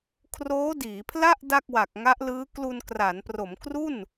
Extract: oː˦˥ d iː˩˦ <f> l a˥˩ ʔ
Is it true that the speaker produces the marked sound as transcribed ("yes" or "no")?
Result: no